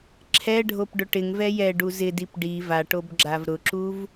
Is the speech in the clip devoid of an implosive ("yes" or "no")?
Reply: yes